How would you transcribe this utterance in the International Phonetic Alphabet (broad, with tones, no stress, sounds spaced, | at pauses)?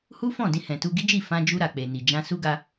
h u˦ f ɔ̃˦˨ d ĩ˧ h ɛ̃˨ t u˧ ɡ i˦ d͡ʒ i˦˨ f ã˧ d͡ʒ u˧ ɾ a˨ k͡p e˨ n i˨ d͡ʒ ã˧ s u˦ ɡ a˧